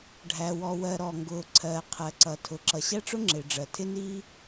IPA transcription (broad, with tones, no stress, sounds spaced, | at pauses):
ɖʱ æ˩ w ɔ˩ w ɜ˩ ɾ ɔ˩ ŋ ɡ ʊː˩ ǀʰ ɜː˩ qʰ ɜ˩ ǀ ʌ˩ tʰ ʊ˩ ǁ ʌ˩ ɕ æ˥ ʈ͡ʂ ʊ˥ ŋ͡ǁ ɪː˩ ɖ͡ʐ ɜ˩ tʰ ɪ˥ n iː˥